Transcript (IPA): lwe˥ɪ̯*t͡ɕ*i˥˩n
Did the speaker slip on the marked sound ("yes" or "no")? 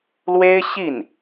yes